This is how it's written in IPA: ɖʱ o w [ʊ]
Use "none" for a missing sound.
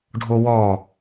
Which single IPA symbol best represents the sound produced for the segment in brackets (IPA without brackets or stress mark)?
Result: ɔ